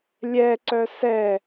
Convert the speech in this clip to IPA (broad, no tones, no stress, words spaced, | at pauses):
lʲɛǀœ sɛ